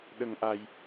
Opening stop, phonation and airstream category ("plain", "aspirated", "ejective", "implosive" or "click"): implosive